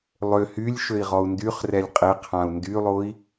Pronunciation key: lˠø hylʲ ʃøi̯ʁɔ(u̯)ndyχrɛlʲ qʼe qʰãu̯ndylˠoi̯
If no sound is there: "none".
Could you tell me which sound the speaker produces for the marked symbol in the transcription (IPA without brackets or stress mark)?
u̯